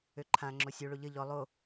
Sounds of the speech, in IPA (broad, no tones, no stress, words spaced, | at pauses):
øǃʰã ŋ͡ǁosʲoɭo ʎə ʎɔ lˠo